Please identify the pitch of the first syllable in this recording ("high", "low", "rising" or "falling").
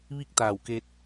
falling